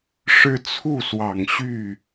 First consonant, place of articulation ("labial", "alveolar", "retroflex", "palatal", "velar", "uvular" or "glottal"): retroflex